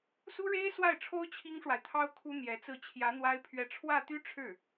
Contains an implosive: no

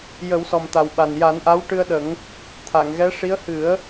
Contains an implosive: yes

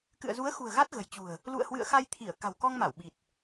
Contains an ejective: no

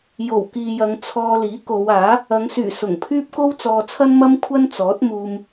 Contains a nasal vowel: no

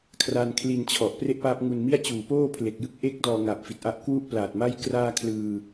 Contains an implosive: no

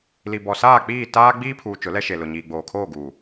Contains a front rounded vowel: no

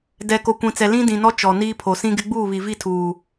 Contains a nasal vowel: yes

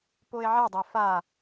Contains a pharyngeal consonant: yes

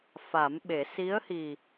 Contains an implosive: yes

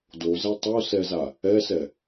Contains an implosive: no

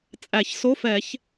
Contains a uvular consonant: no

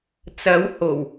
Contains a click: no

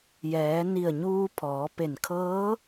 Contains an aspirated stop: yes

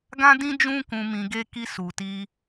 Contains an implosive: no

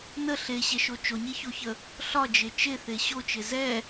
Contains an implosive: no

